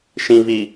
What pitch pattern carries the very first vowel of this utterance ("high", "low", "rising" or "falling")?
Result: low